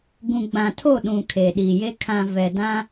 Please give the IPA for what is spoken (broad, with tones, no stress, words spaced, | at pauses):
ɡũ˨ɡ͡bã˨tʰo˦˨ ɗũ˨ kʰeː˨ɗiː˨je˦ kʰã˨ vɛ˨dã˦